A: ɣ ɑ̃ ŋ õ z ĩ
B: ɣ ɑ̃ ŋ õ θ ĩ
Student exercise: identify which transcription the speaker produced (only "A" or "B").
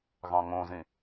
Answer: A